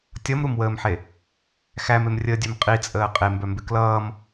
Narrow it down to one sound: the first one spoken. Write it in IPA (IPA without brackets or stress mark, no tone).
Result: tʲ